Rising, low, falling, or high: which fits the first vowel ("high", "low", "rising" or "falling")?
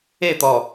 falling